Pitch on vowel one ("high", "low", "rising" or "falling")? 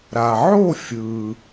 low